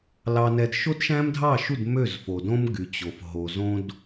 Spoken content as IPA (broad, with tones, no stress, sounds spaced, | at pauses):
l ɑ˧ n ɛ˧ d ʃ o˦ d ʃ æ̃˦ m dʱ ɑ˦˨ ʃ u˦˨ d m ø˦˨ z f o˨ d õ˦ m ɡ y˨ t͡ɕ o˨ f ɦ o˨ z õ˧ d